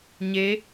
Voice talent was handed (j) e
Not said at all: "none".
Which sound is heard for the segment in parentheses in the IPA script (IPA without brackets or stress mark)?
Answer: ɲ